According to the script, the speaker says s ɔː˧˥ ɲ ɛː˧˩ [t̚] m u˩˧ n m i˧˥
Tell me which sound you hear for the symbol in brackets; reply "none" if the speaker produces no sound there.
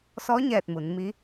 t̚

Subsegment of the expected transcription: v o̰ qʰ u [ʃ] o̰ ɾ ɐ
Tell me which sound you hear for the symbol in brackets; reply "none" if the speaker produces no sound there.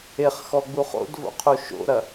ʃ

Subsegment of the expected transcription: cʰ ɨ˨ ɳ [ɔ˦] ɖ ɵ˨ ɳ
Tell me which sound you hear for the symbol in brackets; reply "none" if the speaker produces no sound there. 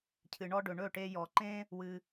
ɔ˦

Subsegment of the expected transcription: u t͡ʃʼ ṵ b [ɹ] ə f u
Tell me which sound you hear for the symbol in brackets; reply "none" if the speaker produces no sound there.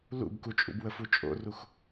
w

